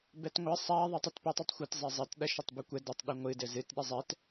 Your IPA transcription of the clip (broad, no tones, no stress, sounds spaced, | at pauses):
b ɛ t ŋʷ ɘ sˤ a ðˤ e tˤ ɨ t p ɨ tˤ ɘ tˤ xʷ ɘ t zˤ e zˤ ɘ t ɗ ɐ ʃ ɐ tˤ b ɨ kʷ ɛ d ɘ tˤ ɗ ɨ ŋʷ ɨ d ɘ z ɨ t ɗ e zˤ ɛ t